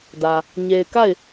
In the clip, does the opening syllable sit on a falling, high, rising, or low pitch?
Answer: low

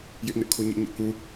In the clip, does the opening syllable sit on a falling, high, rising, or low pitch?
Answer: high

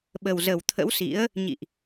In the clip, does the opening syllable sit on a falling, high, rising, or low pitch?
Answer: low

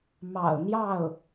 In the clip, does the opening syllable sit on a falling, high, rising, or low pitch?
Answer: low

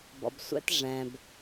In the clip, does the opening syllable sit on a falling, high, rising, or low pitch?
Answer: low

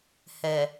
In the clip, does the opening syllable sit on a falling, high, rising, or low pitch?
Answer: low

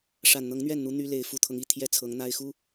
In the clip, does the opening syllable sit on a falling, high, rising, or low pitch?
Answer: low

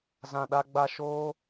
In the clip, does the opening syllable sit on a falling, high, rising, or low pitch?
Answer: low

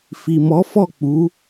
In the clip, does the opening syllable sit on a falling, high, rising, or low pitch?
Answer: low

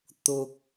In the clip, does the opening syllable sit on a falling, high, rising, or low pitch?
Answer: low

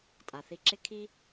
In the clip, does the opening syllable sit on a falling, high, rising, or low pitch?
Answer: low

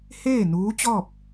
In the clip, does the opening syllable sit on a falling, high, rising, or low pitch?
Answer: falling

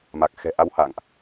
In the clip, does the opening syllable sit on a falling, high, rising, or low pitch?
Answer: low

